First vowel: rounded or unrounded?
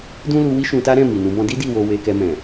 rounded